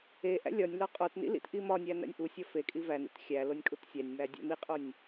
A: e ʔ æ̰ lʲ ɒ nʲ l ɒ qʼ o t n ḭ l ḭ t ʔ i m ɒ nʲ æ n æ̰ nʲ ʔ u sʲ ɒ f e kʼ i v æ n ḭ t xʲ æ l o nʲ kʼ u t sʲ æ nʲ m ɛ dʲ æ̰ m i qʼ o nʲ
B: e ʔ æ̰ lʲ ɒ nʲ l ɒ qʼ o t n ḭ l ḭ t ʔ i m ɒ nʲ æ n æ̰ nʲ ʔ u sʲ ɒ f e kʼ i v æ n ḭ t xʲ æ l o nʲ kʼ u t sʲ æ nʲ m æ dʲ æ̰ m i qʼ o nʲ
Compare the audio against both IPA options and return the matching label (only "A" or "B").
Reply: B